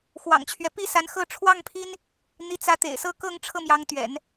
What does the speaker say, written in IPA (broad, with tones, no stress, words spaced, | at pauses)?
xwɑ̰˨˩ŋt͡ɕʰɥɛ˦ pi˥˩sa˧˥nxɤ˥˧ ʈ͡ʂʰwɑ˥˩ŋpʰi˥n | n̪i˧˥t͡sä˧˥t̪ḛ˨˩ɪ̯sɤ˥˧ kɤ˥˧ŋ ʈ͡ʂʰɤ˥˩mjɑ˧˥ŋt̪ɥɛ̰˨˩˦n